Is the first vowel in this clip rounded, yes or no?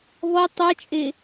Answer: yes